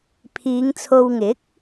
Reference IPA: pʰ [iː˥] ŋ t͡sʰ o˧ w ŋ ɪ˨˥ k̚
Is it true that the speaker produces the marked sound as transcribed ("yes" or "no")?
no